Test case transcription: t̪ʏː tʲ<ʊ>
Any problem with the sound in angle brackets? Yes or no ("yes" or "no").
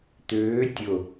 no